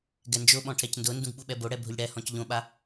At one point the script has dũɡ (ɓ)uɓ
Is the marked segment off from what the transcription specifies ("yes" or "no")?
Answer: no